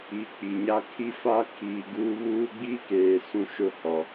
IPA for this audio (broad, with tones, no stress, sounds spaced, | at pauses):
i˨˦ k͡p i˨ ɲ a˦ kʰ i˦ f a˦ kʰ iː˨ ɡ uː˦ β uː˦ ɡ͡b iː˦ k eː˨ s ũ˦ ʃ ʊ˦ h ɔ˨